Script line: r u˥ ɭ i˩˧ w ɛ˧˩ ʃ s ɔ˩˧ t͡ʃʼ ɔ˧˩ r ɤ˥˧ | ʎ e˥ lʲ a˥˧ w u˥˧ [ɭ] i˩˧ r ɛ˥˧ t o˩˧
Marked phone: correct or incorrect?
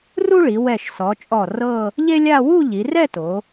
incorrect